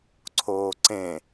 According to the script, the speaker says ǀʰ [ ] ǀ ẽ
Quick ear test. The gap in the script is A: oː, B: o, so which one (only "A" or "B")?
A